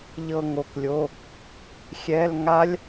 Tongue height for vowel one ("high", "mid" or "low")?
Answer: mid